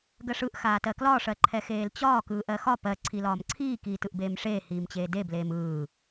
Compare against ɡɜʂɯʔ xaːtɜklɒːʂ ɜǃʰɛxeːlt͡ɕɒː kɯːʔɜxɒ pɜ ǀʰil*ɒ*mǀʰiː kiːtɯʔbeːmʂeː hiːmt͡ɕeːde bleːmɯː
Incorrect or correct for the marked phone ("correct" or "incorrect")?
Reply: incorrect